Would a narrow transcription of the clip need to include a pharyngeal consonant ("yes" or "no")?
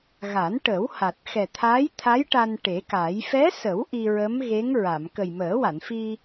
no